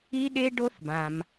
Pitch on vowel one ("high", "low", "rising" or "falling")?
high